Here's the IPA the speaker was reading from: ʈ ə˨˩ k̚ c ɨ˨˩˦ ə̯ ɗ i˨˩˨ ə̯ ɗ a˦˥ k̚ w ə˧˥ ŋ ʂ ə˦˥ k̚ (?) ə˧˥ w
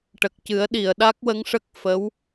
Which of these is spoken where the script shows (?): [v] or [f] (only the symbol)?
f